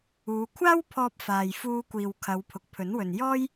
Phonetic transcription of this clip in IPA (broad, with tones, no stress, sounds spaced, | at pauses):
uː˨˧ kʷʰ aː˥ w pʰ ɔː˧ p̚ f aː˨ j f uː˧ kʷ iː˨ w kʰ ɐ˨˧ w pʰ ʊ˨ k̚ pʰ ɵ˨˥ n w ɵ˨ n j ɔː˥ j